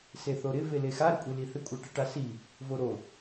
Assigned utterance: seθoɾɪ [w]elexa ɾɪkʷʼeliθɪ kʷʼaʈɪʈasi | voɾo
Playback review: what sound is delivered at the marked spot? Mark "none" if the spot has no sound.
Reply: v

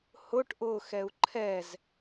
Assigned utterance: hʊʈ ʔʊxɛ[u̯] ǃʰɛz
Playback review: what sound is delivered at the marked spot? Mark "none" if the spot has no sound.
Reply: u̯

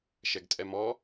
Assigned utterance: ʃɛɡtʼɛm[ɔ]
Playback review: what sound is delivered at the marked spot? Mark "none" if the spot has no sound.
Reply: ɔ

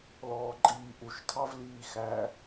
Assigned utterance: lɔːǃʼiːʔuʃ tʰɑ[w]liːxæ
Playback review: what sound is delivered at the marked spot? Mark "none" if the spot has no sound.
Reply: v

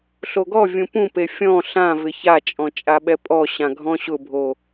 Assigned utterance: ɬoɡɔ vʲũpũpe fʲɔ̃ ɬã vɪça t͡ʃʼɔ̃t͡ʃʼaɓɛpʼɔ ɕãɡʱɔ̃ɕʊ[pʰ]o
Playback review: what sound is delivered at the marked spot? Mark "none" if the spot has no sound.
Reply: bʱ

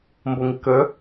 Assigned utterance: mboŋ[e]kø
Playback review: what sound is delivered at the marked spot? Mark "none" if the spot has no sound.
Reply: i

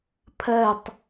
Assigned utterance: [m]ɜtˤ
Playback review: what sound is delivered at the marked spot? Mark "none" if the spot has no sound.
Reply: pʰ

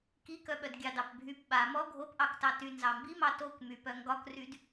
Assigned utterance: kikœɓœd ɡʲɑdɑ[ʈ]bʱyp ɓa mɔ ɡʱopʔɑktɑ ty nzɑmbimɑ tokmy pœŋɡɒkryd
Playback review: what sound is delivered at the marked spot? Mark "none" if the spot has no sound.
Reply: p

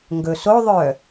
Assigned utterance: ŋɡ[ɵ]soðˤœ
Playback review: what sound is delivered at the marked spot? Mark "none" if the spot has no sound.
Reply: ɵ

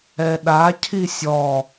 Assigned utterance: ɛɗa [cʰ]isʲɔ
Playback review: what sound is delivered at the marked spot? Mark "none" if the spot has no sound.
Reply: cʰ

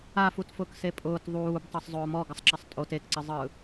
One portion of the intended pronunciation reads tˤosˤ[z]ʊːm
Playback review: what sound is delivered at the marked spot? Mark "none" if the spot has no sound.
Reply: zˤ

